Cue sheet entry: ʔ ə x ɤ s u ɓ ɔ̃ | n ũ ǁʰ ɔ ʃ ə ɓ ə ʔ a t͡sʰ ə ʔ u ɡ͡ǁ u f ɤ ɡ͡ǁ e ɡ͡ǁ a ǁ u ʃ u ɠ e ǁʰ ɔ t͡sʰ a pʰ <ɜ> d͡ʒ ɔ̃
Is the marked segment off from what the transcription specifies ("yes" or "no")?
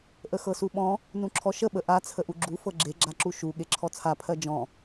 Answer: no